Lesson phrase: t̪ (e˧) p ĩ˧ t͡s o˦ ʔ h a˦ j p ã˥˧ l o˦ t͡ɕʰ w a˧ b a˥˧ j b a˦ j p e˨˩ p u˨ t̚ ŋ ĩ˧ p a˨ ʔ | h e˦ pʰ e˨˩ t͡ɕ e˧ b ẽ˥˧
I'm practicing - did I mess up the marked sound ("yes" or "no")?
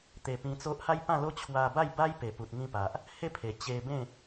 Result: no